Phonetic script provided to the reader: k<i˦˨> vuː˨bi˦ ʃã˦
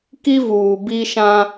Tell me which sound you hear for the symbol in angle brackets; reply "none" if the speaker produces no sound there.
i˦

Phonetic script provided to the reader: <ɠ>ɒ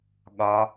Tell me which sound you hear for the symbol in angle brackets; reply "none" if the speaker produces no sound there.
ɠ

